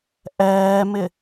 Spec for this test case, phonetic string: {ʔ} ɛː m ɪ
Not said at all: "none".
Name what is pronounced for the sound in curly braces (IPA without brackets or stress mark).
ʔ